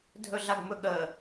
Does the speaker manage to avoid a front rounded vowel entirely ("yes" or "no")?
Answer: yes